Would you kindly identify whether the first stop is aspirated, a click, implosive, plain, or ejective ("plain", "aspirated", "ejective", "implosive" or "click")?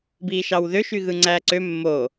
plain